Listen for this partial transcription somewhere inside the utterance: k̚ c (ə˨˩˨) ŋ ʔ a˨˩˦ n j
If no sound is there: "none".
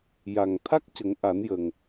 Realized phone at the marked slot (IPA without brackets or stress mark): ə˨˩˦